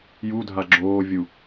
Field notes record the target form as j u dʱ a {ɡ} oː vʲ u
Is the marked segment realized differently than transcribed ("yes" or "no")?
yes